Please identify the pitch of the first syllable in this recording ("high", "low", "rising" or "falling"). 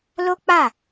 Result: high